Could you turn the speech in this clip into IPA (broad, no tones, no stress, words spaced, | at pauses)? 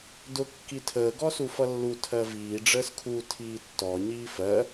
dʊ kːitʰəː ɡɔsufʌlːu tʰɜviː ɖ͡ʐəːskʰu tʰiːtːɔ ɲiːfɜ